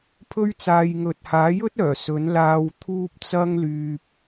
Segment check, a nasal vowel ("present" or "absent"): absent